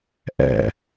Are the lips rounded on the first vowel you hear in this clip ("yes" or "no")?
no